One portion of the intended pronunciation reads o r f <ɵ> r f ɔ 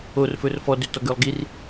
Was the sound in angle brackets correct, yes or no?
yes